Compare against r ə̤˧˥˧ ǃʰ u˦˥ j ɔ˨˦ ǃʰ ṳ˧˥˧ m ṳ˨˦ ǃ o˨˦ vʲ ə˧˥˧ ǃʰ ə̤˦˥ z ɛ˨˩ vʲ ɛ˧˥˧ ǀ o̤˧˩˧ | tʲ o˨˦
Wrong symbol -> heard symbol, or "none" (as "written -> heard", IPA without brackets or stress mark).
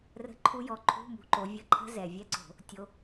none